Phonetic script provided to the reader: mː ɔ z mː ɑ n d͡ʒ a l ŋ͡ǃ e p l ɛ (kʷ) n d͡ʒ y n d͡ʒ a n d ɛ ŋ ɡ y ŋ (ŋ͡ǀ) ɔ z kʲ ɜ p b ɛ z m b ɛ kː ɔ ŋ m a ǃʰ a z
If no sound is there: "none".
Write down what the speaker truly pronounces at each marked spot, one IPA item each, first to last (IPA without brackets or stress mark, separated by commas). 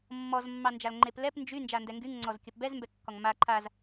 p, ŋ͡ǀ